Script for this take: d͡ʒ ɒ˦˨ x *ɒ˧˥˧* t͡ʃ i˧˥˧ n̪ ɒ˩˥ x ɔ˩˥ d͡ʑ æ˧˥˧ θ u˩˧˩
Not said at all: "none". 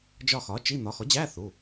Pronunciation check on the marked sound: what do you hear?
ɒ˩˥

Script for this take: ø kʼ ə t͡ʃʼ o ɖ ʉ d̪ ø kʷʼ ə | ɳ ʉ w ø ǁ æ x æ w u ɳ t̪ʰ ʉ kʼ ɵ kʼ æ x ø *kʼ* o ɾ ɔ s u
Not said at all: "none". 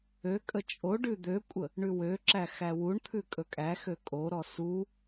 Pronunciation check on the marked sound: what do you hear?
kʼ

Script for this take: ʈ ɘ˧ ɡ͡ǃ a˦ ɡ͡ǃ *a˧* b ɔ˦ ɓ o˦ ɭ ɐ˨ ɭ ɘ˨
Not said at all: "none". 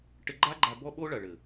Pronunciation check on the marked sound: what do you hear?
a˧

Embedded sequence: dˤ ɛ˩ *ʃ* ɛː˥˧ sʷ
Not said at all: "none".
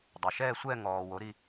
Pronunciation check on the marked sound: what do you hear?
ʃ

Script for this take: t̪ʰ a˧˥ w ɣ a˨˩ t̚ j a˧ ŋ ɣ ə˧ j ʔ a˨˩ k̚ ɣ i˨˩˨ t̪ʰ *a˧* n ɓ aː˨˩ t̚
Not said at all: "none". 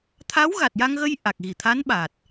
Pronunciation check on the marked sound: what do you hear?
a˧˥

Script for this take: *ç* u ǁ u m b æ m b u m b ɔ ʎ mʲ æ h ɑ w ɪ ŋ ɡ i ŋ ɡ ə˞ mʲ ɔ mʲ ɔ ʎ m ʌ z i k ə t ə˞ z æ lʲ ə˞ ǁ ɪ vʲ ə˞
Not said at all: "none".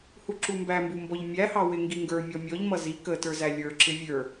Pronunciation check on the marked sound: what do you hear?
h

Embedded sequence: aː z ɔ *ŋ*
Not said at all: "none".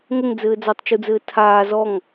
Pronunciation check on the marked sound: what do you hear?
ŋ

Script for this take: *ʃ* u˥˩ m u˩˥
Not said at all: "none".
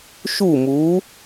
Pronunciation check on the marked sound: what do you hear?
ʃ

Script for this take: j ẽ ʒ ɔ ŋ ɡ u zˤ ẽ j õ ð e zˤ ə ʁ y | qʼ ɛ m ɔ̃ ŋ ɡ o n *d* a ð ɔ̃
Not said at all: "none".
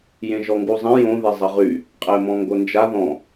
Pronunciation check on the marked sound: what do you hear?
d͡ʒ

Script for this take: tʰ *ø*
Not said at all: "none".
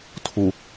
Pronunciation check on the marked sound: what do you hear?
u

